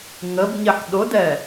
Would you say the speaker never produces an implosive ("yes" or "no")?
no